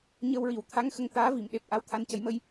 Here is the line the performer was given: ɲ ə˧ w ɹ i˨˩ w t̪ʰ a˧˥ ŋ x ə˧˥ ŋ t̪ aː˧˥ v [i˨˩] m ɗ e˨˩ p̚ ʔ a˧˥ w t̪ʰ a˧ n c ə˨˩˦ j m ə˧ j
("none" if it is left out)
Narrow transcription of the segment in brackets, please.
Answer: i˨˩˨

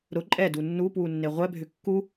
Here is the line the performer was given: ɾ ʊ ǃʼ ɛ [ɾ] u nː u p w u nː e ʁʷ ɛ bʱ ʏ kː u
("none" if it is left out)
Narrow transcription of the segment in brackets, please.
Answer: d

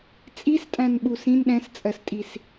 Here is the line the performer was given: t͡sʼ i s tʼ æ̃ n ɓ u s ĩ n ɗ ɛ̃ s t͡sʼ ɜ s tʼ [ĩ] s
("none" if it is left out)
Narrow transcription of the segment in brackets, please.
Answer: i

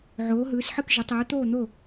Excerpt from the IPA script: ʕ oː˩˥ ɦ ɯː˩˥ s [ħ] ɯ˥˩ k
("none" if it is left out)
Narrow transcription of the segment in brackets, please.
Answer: ħ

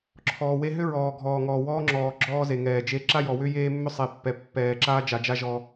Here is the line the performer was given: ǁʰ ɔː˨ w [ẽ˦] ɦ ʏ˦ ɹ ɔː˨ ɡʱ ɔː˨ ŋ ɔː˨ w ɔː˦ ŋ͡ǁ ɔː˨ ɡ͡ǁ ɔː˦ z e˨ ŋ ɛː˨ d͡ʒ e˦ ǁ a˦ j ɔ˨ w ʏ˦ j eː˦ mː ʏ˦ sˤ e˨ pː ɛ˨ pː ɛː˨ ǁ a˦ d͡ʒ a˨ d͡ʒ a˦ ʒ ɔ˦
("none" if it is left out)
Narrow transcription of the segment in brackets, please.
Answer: e˦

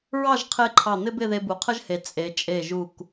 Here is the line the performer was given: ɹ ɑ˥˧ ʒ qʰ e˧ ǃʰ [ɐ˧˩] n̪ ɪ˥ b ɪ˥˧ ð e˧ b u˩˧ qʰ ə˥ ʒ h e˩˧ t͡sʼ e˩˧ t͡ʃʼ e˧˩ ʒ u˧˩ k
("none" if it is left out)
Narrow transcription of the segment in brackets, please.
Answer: ɑ˧˩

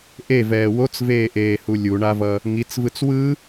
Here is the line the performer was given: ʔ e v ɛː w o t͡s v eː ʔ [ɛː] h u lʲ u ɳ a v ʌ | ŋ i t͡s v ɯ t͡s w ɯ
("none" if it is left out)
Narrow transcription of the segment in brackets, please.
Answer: eː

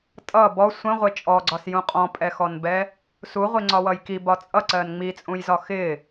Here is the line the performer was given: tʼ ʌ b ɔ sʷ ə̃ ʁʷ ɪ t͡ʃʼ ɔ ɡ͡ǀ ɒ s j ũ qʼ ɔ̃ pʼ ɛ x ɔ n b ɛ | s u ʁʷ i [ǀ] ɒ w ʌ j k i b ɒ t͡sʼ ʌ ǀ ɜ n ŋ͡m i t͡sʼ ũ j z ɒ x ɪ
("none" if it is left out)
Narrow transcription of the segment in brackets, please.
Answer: ŋ͡ǀ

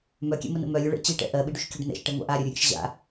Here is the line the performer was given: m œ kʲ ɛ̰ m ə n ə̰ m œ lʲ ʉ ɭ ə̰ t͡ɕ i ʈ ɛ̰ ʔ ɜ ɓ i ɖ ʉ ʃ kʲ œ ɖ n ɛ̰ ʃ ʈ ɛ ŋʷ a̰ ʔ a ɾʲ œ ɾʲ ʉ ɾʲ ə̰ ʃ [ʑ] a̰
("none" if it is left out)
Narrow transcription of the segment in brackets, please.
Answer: ʑ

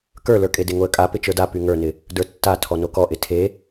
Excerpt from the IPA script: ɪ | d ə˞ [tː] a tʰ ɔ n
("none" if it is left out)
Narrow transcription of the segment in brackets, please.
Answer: tː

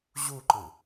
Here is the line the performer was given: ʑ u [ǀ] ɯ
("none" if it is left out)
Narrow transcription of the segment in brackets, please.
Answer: ǃ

